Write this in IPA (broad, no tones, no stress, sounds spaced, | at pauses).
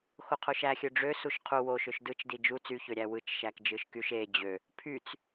x o qʰ o ʃ æ xʲ ø ɖ͡ʐ ø s u ʃ qʰ u w o ʃ ø ʃ d ɯ t͡ʃ d i d͡ʒ u t͡s y ç ø ɾʲ æ w ɯ t͡ʃ ʃ æ k d͡ʒ ɯ ʃ k y ʃ e d͡ʑ ø | pʰ y t͡s